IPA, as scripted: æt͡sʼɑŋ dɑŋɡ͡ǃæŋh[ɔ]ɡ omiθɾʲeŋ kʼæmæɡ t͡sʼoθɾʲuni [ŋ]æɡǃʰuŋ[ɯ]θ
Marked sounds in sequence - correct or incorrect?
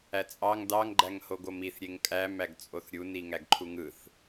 incorrect: o, correct, correct

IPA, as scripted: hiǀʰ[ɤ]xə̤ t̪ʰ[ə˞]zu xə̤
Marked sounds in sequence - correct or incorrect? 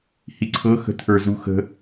correct, correct

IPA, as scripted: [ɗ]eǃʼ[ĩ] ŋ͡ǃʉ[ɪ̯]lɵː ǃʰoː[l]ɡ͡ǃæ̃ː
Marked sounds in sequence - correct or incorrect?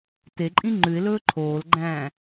incorrect: t, correct, correct, correct

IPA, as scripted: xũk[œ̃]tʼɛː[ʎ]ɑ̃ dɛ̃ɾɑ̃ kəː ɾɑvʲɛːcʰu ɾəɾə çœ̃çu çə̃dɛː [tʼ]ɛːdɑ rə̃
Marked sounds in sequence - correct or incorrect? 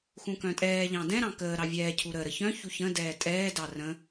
correct, correct, correct

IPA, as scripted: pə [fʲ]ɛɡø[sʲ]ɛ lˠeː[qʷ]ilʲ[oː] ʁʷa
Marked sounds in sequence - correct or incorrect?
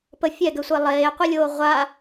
correct, incorrect: sʷ, correct, correct

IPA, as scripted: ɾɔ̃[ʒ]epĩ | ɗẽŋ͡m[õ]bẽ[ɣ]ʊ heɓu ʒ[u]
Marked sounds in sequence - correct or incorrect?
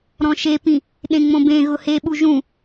incorrect: ʃ, correct, correct, incorrect: ũ

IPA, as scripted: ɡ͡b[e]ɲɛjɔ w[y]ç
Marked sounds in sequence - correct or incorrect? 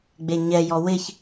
correct, incorrect: ɪ

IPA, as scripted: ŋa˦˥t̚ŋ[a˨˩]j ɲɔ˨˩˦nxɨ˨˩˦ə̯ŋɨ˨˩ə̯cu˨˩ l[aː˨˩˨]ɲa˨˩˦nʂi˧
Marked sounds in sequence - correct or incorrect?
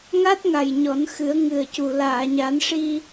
correct, correct

